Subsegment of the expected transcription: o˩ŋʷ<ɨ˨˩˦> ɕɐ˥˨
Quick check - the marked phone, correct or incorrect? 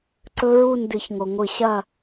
correct